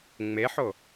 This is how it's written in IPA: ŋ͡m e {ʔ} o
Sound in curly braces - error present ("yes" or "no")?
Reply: yes